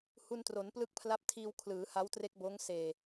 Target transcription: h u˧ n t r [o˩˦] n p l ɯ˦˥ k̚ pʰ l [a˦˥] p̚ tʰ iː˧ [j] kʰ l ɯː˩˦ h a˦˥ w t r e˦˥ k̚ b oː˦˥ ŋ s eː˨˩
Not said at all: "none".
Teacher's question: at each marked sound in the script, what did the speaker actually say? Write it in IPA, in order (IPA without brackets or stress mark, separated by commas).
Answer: o˩˦, a˦˥, w